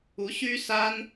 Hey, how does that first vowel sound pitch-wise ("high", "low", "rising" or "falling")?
rising